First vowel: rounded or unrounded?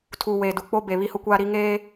rounded